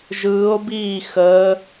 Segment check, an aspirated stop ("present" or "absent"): absent